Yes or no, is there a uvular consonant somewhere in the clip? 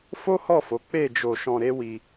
no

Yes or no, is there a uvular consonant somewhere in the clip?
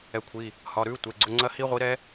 yes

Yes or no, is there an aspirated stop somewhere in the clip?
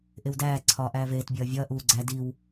yes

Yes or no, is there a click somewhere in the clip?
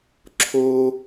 yes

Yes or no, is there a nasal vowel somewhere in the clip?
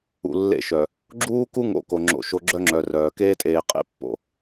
no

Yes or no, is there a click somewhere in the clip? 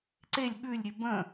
yes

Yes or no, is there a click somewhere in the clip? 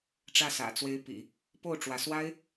no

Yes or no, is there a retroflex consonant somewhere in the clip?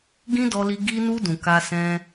no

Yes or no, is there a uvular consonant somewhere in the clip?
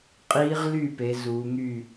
yes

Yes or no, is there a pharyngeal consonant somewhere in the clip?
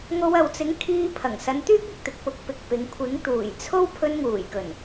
no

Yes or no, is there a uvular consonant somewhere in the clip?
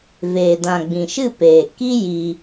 no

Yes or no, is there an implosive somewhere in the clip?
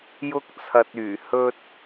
no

